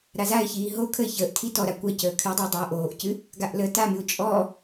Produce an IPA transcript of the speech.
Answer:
ɾazaɪ̯çiː ɦo kʰəɪ̯çəːʔtʰi tɔɾa kʷacəː kʰɨdˤa dˤaʊ̯ʔoːʔcɨ | ɡaʔləːtamɨʊ̯ t͡ʃʼɔ

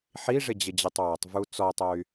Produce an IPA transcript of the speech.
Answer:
ħiʐɪd͡ʑɪd͡ʑetˤ wɔtˤvu t͡sɔtˤoy̯

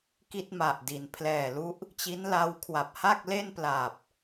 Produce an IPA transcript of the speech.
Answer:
ki˥˩t̚ma˨˩ʔdi˩˦n pʰlɛː˨˩lu˦˥ʔ | t͡ɕi˦˥nla˦˥wkʰwa˨˩p̚ ha˥˩k̚le˥˩npla˨˩p̚

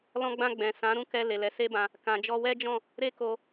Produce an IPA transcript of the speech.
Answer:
lɔ̃˧ɡ͡bã˧ ɡ͡bɛ̃˨ sã˨˦ɾũ˦˨kɛ˧ le˨lɛ˨˦se˦bã˧ | kã˨d͡ʒɔ˧wɛ˦d͡ʒɔ̃˦˨ | ɾe˦ko˧

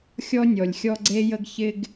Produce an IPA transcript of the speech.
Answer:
xʲɔ˦ nʲɔ˨lʲxʲɔ˦ɡ͡ǀe˦jə˦ɡ çɪ˦ɡ

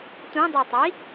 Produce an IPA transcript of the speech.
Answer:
tʷĩdˤotˤi

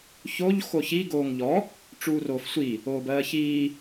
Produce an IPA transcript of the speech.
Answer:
çoʎ xoçi ɡoːŋʎɔ | ʈ͡ʂuːroːfsʷi | oːbɜːçiː

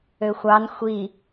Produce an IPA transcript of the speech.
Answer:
øxʷɑn xʷi

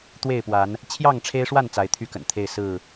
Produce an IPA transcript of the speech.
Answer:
t̪we˥˨ɪ̯pwa˨˦n | t͡ɕʰjɑ˥˨ŋʈ͡ʂʰe˦ɪ̯ʂwa˥˨n t͡sa˨˦ɪ̯t̪ʰy˥˨kə̰˨˩nt̪ʰe˥˨ɪ̯ sɹ̩˥˨

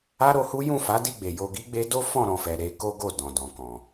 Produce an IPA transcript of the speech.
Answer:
a˦ɾo˧hu˦ jũ˦˨fa˨˦di˦˨ɡ͡be˨ jo˧ɡi˦ɡ͡be˦ do˦fɔ̃˦˨ɾɔ̃˨fɛ˨ ɾe˨˦ ko˦ɡo˦˨ dɔ̃˨dɔ̃˨kɔ̃˨

